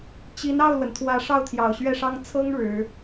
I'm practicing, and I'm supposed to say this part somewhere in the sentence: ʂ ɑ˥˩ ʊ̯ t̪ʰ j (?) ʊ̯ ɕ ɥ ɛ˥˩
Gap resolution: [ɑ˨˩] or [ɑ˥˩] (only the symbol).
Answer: ɑ˨˩